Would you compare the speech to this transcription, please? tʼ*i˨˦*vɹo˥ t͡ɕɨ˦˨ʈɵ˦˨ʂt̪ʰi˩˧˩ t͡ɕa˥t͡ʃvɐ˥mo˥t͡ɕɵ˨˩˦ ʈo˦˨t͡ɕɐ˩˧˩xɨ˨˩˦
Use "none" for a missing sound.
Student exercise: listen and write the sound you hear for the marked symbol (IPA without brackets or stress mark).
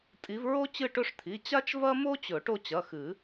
i˨˦